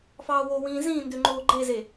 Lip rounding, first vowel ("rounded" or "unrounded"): unrounded